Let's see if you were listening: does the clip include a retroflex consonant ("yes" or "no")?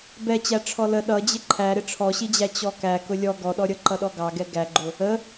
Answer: yes